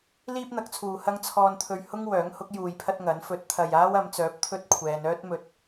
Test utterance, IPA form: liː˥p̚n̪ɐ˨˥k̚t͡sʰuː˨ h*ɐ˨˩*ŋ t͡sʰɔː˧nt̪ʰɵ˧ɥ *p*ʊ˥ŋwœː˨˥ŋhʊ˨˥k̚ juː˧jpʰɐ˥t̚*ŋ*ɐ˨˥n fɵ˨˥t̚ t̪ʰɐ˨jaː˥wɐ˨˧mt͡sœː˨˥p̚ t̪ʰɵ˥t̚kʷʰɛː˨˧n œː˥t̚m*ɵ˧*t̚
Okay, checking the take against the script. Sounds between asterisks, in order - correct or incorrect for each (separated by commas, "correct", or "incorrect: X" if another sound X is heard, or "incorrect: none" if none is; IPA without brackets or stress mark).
incorrect: ɐ˥, incorrect: h, correct, incorrect: ɵ˨